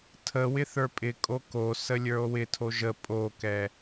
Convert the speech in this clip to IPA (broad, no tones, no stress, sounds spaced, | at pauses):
tʰ ə w ɪ θ ə˞ pʼ ɪ kʼ o k o s ə lʲ ə˞ o̯ w ɪ tʰ o ʒ ə pʼ o k ɛ